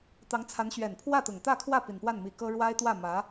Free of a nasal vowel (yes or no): yes